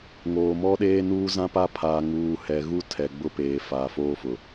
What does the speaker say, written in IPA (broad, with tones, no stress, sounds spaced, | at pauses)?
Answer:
ŋ oː˨ m ɔ˦ ɗ eː˦ n uː˦ z ã˦ p a˦ pʰ aː˨ ŋ uː˨ h ɛ˨ ɣ u˦ tʰ ɛ˨ ɡ͡b ʊ˦ p eː˨ f aː˨ f oː˦ f ʊ˨